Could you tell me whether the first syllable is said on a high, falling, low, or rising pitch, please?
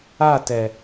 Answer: falling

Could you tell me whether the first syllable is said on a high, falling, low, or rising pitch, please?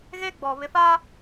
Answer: high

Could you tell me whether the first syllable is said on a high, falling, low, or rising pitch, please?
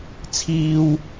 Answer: high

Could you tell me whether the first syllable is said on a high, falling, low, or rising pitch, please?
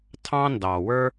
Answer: high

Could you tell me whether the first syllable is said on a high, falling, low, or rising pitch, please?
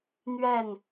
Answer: falling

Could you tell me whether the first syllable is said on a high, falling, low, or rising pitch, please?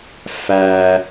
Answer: high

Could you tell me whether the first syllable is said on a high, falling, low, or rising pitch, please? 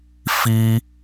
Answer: high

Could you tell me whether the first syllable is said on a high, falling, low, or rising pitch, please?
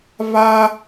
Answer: high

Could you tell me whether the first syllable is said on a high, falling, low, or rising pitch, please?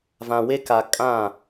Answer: low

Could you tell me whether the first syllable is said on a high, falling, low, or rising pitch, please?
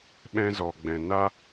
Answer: high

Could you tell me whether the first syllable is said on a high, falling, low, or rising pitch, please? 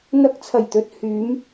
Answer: rising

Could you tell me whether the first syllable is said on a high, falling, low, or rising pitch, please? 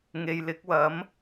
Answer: low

